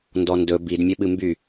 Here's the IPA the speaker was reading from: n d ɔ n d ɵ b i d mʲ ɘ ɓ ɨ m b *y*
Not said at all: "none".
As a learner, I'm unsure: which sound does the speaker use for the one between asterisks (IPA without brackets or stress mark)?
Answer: y